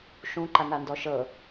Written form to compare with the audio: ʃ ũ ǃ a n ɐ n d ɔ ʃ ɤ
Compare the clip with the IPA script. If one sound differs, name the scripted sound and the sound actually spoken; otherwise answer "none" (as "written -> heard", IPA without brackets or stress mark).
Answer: ɐ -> a